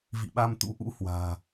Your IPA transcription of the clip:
v ḭ˧˨ ɓ a˧ m t̪ ṵ˧˥ ʔ ṵ˧˥ h w a̤ː˨˩

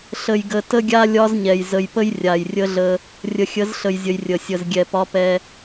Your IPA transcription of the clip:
ɬ ə˨ j ɡ ə˨ t ə˦ ɡʲ a˦ lʲ ɒ˦ z ɲ ɛ˨ j z ə˨ j p ə˦ j rʲ a˨ j rʲ ə˦ ɮ ə˦ | rʲ ə˨ xʲ ə˨˦ z ɬ ə˨ j zʲ ə˨ j rʲ ə˨ sʲ ə˨ z ɡʲ ɛ˨ p ɒ˦ p ɛ˦

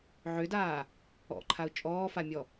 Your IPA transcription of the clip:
ʕ ʏ d aː | ɔ̰ ǃʰ a ʊ̯ t͡ʃʼ ɔː f a mʲ ɔ

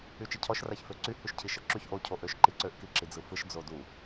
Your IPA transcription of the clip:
y t͡ʃ i cʰ ɔ ʃ r a ç f ø ǀ y h y ʃ cʰ i ʃ ɤ ǁ y ç ʔ o cʰ o ʔ ø ʃ ǃ i ǀ ø ʔ k i ǁ i d͡z ɯ f ɯ ʃ d͡z o d u

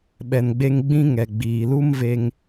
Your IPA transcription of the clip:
ɓ ɛ˨ n ɡ͡b e˧ ŋ ɡ͡b ĩ˧ ŋ ɛ˨ ɡ͡b iː˨ l u˦ m v e˧ ŋ

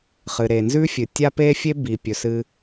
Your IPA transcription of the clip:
χ ɨ˩ ɾ e˩ n z ʉ˥ fʲ ɨ˩ tʲ a˥ p e˥ fʲ e˥ b i˩ pʲ ɵ˩ s ɨ˧

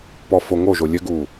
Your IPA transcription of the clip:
p ɔ f o ŋ o ʒ o lʲ ɘ ɡ uː

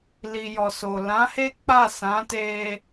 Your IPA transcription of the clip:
l i˨ j ɔ˨ s o˨ l ã˨˦ h e˦ k͡p a˦˨ s ã˨˦ t e˧

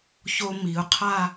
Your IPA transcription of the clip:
ç o˧ m i˩˧ ʊ̯ qʰ a˥˧

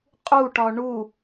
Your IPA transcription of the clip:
qʼ u ʈ ɒ ɳ u

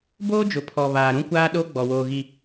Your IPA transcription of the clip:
b oː˦ d͡ʒ ʊ˨ pʰ ɔ˨ β aː˨ ɾ ũ˦ kʷ aː˦ ɗ o˦ ɡ͡b ɔ˨ w oː˨ ɣ i˨

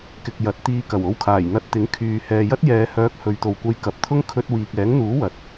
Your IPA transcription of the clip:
k ɪ˨ k̚ j ɐ˨˥ t̚ t̪ iː˧ k ɐ˨˩ w o˧ w kʰ aː˨˩ j n̪ ɐ˧ t̚ t̪ ɪ˨˥ ŋ kʰ yː˨ h ɛː˨ j ɐ˥ t̚ j ɛː˨˧ h œː˨˥ k̚ h ɵ˨˧ ɥ t̪ o˨ w kʷ ɐ˧ j k ɐ˨ p̚ t̪ʰ ʊ˥ ŋ kʰ ɵ˧ t̚ w iː˨ k̚ ɛː˨˥ ŋ n̪ uː˨˥ w ɐ˨ t̚

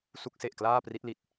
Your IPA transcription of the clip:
s u˦˥ k̚ s e˨˩ ʔ k l aː˥˩ p r i˦˥ t̚ l i˨˩ t̚

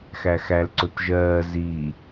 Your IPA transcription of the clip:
x æ x æ l ǀ ʊ t ʒ ɜː z i

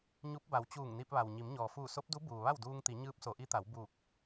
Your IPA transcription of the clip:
ɲ u˧˥ p̚ b a˩˧ w t͡ɕ uː˧˩ ŋ n i˧ p̚ ʋ a˩ w ɲ i˩˧ m ɲ ɔː˩ f uː˧˩ s o˧˥ p̚ d u˧˥ b uː˩ ʋ a˥˨ w d uː˧ ŋ t̪ i˩˧ ɲ ɯː˧˥ p̚ s o˩˧ ʔ i˧˥ t̪ a˩˧ w b u˧˩ k̚

